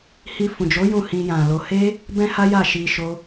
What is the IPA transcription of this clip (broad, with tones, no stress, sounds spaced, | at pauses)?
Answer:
h i˧ f ũ˨ d͡ʒ o˨˦ j ũ˦˨ h ĩ˧ j ã˨ l o˧ h e˦ | b ɛ̃˦ h a˦ j a˦˨ ʃ i˧ ʃ o˦